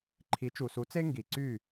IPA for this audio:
ǃʰ i˩˥ t͡ʃ u˩ s u˩˥ t͡s e˥ ŋ ɡ i˩ ǀ y˥˩

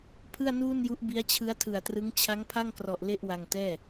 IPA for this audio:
pʰ ɯ˥˩ a̯ n uː˥˩ n j u˦˥ ʔ b i˦˥ a̯ t͡ɕʰ ɯ˦˥ a̯ tʰ ɯ˨˩ a̯ t r ɯ˦˥ ŋ t͡ɕʰ a˦˥ ŋ pʰ a˥˩ ŋ k r ɔ˨˩ ʔ l e˥˩ ʔ w a˧ ŋ t ɛː˥˩

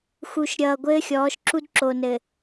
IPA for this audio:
x u˨ ʃ ɾʲ ʌː˨ ɡʷ ɘː˦ xʲ ɔː˨˦ ʃ ǁ u˦ d ǁ o˨ n ɘ˨

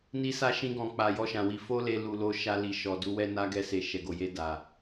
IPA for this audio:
n i˧ s a˧ ʃ ĩ˧ ɡ ɔ̃˨ k͡p a˨ j ɔ˧ ʃ ã˨ w i˧ f o˦ l e˧ l u˨ l o˧ ʃ a˧ l i˨ ʃ ɔ˨ d u˧ w ɛ˦ n a˦ ɡ ɛ˧ s e˨ ʃ ɛ˨ ɡ o˨ j e˧ d a˨

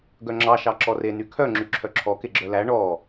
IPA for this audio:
ɡ œ ŋ͡ǁ ɑ ʃ ɑ ǁ ɔ r e n y kʰ œ ŋ͡ǁ y ǁʰ œ ǁʰ ɔ k e ɡ͡ǁ œ l æ ɳ ɔ

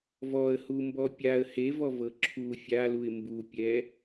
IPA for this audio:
v ɔ ə̯ h u m b ɔ pʲ a ə̯ h e v ɔ v ɤ ǁʰ u fʲ a l u ɪ̯ m b u pʲ ɛ

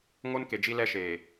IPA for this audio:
ŋ o˦ n k e˨ d͡ʒ i˦ l ɛ˦ ʃ eː˨

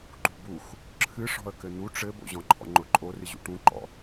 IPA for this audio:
ǃ ṳ b u x | ǁʰ ɨ ʂ ɔ̤ ə̯ k ɘ n̪ u ʈ͡ʂ ɘ b o̰ ʑ ɔ̃ ǃʰ ɔ̰ ŋ͡ǃ ʊ ǃʼ o r ɨ ʑ ṵ ʈ ũ ǃ ɔ̰

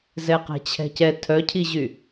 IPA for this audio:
z ɛ q ɛ̤ t͡ɕʰ ɛ̤ c ɛ tʰ œ cʰ i ʑ y

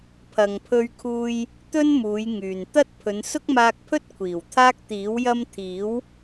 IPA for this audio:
pʰ ɐ˨ ŋ pʰ ɵ˧ ɥ kʰ uː˧ j | t̪ ɵ˥ n m uː˨˧ j ŋ yː˨ n t̪ ɐ˥ t̚ pʰ ɵ˨˧ n s ʊ˥ k̚ m aː˧ k̚ pʰ ɵ˥ t̚ kʷʰ iː˨˩ w t̪ʰ aː˥ k̚ t̪ iː˨˥ w j ɐ˥ m t̪ʰ iː˨˥ w

